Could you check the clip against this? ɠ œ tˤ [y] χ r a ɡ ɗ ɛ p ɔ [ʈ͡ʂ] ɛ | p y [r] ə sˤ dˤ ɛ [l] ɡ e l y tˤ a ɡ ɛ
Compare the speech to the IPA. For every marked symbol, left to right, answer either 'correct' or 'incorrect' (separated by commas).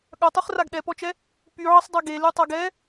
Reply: correct, incorrect, incorrect, incorrect